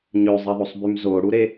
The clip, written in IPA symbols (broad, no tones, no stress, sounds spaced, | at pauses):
ɲ ø zˤ e ðˤ o sˤ b y m z o ɽ u ɾ e